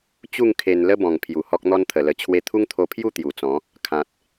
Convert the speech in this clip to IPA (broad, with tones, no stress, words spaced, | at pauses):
t͡ɕu˥˧ŋ kʰe˧n lə˦bɔ̃˨˩ŋpʰju˨˩ hɔ˦k̚n̪ɔ˦nt̪ʰə˨˩lə˧ t͡ɕʰwe˧t̪ʰu˦ŋt̪ʰo˧pʰju˥˧ t̪ju˨˩t͡sɔ̃˨˦ | kʰã˨t̚